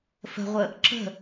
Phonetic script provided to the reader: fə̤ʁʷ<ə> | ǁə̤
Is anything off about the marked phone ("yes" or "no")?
no